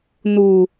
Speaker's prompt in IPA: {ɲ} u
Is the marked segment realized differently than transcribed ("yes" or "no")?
yes